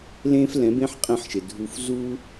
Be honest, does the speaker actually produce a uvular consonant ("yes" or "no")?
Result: yes